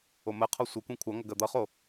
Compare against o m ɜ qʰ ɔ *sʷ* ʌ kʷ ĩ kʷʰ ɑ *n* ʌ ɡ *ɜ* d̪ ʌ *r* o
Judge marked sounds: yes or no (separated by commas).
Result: yes, no, yes, no